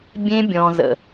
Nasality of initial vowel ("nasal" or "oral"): nasal